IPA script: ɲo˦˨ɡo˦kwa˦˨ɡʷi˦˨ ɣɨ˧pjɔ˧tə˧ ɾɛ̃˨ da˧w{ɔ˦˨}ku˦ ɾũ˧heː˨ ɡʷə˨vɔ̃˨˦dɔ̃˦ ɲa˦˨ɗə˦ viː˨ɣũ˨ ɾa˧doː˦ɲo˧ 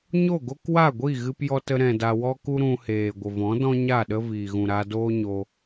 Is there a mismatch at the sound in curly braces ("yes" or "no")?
yes